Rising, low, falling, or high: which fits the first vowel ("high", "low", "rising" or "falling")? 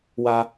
high